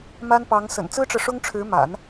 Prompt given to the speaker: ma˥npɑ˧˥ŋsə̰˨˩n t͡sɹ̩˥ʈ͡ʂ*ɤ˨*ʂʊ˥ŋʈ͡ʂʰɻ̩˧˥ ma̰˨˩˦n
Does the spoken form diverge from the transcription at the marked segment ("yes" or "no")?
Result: no